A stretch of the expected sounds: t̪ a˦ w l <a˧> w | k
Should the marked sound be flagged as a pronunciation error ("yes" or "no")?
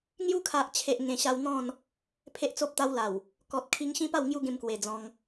yes